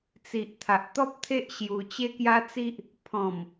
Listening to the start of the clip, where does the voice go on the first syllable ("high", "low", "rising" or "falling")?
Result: low